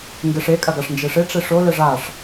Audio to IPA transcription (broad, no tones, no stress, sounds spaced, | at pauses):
ŋ ɡ e ʂ e kʼ ɐ ɡ a ʂ n d͡ʒ e ʂ e ʈ͡ʂ e ʂ o l ɘ ʐ a ʂ